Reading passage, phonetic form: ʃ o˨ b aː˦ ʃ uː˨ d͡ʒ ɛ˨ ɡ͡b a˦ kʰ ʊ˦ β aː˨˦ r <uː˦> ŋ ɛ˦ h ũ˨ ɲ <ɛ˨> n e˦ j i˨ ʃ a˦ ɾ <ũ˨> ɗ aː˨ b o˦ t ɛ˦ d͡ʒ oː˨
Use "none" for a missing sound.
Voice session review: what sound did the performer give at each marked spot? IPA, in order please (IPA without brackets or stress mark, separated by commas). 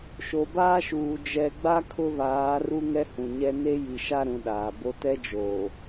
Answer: u˦, ɛ˦, ũ˨